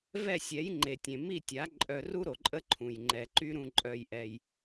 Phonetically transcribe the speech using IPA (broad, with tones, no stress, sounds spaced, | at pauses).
v ɛ˦˨ sʲ ɛ˨˦ j ŋ͡ǃ e˨ tʲ ẽ˨ m i˦˨ tʲ a˨˦ ǃʼ œ˧ r u˦ ɾ o˨ ǃʼ ə˦ ǃʰ ũ˨ j ŋ͡ǃ ɛ˨ ǃ y˦ ɾ ũ˧ ǃʼ œ˧ j ʔ ɛ˧ j